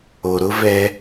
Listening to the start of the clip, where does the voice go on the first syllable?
low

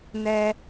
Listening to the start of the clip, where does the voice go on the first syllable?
high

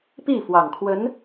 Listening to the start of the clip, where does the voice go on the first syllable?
falling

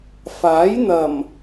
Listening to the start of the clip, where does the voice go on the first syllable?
rising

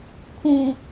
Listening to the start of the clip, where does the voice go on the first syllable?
low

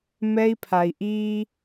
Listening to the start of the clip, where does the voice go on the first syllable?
high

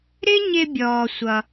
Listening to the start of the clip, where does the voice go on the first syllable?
high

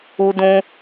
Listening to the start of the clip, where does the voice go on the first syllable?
high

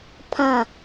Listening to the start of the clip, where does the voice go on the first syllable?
falling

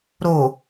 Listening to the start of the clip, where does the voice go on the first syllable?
low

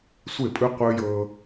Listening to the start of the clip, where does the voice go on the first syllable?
falling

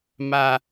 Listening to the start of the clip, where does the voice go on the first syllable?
low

